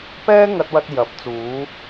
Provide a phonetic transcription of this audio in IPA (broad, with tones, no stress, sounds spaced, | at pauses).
p ɛː˥ ŋ ɐ˧ t̚ w ɐ˧ t̚ j ɐ˨˥ p̚ t͡s uː˨˧